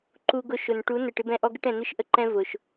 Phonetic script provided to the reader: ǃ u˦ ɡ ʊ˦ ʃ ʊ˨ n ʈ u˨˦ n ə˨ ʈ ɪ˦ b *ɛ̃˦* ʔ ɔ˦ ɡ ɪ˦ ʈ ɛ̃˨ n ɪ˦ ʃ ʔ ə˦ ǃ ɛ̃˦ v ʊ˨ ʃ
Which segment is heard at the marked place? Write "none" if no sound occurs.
ɛ̃˦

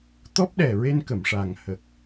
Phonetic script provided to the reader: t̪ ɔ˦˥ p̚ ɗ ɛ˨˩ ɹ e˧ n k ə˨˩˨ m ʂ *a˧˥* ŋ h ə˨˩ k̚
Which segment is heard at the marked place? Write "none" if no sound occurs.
a˨˩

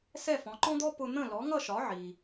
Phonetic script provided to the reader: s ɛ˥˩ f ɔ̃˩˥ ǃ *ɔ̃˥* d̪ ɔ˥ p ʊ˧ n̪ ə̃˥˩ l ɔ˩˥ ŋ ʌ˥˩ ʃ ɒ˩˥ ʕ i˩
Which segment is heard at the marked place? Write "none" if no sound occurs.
ɔ̃˥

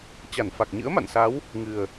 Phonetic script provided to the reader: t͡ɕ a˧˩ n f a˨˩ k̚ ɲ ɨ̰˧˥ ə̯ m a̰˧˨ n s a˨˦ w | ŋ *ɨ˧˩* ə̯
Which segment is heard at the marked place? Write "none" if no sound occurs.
ɨ˨˩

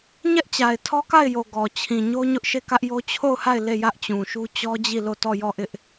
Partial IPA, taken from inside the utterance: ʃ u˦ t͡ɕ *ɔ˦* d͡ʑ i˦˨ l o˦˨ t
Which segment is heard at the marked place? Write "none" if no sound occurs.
ɔ˦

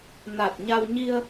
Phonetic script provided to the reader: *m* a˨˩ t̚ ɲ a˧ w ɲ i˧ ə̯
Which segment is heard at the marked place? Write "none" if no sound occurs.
n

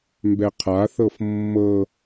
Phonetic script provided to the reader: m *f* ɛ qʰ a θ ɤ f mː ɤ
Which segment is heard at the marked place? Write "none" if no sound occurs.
b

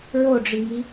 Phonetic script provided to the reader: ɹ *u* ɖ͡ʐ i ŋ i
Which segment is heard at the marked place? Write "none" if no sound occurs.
o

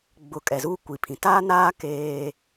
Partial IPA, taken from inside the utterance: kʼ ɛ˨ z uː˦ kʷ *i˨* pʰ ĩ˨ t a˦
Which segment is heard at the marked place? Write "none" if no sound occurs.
i˨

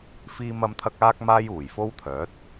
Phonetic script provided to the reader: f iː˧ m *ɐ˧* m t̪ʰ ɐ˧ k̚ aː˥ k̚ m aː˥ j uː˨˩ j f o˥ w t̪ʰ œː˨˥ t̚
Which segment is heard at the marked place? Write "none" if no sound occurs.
ɐ˧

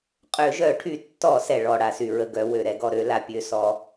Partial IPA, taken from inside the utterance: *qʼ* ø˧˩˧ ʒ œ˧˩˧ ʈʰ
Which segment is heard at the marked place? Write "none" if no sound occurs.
qʼ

